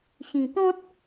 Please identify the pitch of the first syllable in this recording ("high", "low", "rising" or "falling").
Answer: low